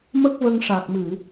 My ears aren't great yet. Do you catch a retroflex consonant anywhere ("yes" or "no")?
yes